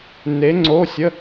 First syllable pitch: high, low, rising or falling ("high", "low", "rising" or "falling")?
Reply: rising